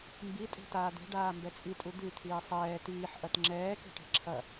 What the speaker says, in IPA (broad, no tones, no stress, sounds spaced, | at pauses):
m b i tʼ e̤ t aː d̪ e̤ ɖ aː m b ɛ t͡sʼ i tʼ u d̪ ʉ t̪ʰ iː sˤ ɛː t iː ħ ʔ ɐ t ŋ͡ǁ ɛː k e̤ ʈ e̤ ǁʰ ɐ